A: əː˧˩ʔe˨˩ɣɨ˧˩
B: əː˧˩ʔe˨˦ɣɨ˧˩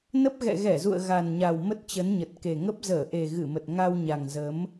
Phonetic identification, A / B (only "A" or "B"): A